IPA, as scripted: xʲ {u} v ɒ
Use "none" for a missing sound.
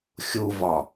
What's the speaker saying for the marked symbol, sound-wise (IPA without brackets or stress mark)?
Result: u